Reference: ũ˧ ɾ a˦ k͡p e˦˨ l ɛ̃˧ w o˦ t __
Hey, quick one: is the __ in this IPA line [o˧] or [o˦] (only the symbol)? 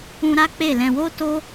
o˦